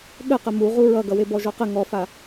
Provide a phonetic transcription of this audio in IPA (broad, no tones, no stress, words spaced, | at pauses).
ɠəqə muʁu ɹʌɡʌwe bɔʒɔqə ŋɔfa